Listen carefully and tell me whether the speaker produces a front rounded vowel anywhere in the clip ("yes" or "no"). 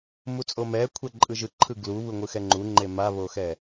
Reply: no